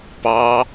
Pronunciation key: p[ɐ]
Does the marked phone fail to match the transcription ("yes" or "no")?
yes